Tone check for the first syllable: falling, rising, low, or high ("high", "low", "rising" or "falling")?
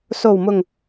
low